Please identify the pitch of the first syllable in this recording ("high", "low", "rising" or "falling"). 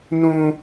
high